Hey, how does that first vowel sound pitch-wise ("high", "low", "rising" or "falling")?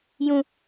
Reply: high